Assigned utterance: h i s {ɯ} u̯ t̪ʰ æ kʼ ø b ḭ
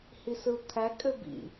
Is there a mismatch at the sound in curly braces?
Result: no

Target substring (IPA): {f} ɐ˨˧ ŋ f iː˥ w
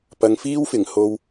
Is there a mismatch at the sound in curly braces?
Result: yes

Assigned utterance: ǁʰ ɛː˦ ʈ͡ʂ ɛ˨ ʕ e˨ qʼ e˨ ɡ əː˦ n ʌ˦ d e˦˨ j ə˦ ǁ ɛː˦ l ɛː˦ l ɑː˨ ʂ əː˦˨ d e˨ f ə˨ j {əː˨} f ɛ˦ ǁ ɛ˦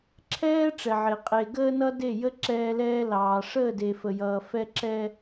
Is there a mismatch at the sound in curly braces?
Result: yes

